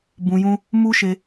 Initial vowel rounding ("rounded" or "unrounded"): rounded